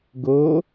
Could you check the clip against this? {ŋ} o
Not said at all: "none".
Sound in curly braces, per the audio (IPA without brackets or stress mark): ɡ